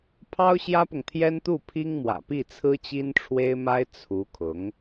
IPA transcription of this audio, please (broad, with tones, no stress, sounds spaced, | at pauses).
pʰ ɑ˥ ʊ̯ ɕ j ä˥ p ʊ˨ ŋ t̪ʰ j ɛ˥ n t̪ u˥˩ pʰ i˥ ŋ m w ä̰˨˩ p i˥˩ t͡sʰ ɹ̩˥ t͡ɕ i˥ n ʈ͡ʂʰ w e˥ ɪ̯ m a˥ ɪ̯ t͡sʰ u˧˥ kʰ ʊ˧˥ ŋ